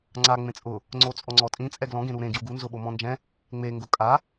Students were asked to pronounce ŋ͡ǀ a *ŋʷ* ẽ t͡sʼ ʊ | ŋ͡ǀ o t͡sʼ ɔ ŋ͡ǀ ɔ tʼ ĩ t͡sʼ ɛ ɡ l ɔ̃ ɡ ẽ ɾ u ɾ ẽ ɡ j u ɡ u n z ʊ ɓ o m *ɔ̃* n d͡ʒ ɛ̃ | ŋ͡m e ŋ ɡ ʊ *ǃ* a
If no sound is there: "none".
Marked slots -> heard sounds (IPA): ŋ͡m, ɔ̃, kʼ

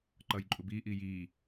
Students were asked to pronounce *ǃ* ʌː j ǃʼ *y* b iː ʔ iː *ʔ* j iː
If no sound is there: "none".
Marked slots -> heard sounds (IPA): ǃ, u, none

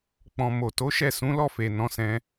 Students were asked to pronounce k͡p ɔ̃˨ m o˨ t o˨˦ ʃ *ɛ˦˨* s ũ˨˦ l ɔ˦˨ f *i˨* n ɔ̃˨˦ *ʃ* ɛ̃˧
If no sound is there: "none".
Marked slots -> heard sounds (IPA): ɛ˦˨, e˨, s

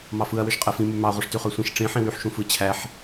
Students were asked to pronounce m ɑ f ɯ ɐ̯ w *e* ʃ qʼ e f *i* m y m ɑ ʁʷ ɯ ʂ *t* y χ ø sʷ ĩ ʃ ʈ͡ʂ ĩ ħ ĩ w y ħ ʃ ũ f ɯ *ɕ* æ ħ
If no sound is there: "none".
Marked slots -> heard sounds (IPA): ø, ĩ, t, t͡ɕʰ

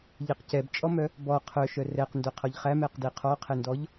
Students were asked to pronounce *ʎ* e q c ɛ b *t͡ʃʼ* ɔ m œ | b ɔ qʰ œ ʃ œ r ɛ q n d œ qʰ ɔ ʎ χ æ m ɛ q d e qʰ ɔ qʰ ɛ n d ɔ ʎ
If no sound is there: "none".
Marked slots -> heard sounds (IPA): ʎ, t͡ʃʼ

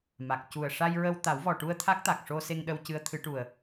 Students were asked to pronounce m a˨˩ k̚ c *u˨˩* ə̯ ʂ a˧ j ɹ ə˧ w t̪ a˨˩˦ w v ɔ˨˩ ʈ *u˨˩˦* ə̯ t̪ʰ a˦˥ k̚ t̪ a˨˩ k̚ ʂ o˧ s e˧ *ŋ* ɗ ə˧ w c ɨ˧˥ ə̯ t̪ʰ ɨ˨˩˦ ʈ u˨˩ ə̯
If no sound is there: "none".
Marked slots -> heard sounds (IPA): u˨˩, u˧, ŋ

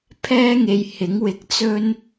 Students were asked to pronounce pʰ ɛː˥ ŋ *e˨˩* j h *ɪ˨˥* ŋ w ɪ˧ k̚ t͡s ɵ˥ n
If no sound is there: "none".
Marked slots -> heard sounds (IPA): e˧, ɪ˨˥

